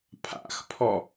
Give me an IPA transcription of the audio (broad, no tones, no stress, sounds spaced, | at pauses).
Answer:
pʰ a̰ x pʰ ɔ